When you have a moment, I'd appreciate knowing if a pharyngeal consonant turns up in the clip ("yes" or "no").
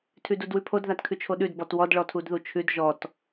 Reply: no